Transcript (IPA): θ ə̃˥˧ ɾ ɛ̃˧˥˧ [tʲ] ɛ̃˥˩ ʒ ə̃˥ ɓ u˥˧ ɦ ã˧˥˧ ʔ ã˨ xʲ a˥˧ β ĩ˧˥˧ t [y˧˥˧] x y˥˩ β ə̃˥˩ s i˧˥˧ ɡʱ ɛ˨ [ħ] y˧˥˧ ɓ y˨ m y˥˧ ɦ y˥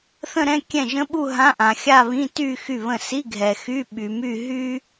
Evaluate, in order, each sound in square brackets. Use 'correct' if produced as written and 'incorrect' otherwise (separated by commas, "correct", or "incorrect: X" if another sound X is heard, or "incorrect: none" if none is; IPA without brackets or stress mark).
incorrect: kʲ, incorrect: y˥˧, incorrect: x